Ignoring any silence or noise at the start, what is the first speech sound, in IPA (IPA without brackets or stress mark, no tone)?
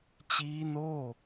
t͡ɕ